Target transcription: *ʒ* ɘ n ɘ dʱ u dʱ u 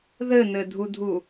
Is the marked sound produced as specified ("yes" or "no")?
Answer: no